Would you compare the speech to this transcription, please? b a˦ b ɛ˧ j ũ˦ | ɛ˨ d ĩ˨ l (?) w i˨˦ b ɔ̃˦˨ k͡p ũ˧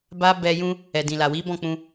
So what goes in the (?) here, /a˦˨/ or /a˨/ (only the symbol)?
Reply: a˨